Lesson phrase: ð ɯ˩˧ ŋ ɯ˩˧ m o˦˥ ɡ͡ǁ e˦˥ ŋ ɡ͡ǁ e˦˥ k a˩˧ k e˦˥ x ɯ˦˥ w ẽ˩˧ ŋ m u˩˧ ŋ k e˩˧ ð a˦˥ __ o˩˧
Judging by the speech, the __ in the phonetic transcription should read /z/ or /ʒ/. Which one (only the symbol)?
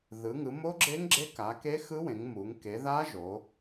ʒ